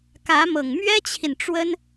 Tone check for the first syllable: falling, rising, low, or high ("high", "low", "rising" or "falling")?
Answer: rising